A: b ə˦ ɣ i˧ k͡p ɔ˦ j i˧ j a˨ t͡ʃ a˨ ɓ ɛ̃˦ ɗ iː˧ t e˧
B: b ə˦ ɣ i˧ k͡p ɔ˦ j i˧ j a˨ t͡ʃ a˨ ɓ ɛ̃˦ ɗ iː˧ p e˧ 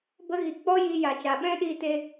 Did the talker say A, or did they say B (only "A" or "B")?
A